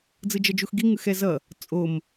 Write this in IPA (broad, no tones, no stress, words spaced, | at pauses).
d͡zɯd͡ʒʌd͡ʒuxɡi ŋɯxɛzʌ | t͡sʼom